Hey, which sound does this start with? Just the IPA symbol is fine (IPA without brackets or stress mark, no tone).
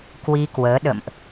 k